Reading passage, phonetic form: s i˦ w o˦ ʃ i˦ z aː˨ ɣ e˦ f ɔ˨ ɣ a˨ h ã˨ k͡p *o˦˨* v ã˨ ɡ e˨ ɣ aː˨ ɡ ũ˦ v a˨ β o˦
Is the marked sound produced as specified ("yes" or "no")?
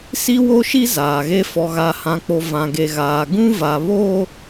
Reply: no